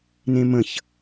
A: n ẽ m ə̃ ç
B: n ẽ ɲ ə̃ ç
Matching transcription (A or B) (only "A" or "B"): A